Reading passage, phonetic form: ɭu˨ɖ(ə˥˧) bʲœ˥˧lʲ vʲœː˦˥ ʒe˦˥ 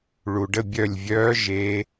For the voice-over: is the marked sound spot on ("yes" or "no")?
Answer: yes